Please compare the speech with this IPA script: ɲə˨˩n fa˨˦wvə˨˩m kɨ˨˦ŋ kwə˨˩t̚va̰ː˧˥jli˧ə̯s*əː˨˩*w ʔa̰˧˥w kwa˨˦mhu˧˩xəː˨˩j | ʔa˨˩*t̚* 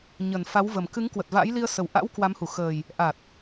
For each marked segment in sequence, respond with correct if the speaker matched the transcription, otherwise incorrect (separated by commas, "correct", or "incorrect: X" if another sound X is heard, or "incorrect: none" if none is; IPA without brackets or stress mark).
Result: incorrect: ə˨˩, correct